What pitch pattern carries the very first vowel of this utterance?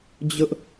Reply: high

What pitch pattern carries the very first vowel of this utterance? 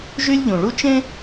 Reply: high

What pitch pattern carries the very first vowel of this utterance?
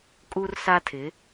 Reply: high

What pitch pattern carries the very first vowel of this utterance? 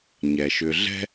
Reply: low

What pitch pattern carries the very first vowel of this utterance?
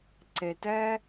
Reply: low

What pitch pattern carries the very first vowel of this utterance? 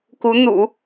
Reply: rising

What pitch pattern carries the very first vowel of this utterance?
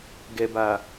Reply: low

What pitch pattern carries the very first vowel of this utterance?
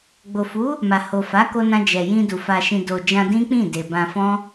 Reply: low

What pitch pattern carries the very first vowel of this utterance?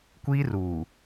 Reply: high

